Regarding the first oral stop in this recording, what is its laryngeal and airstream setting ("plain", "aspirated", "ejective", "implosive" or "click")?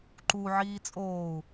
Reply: click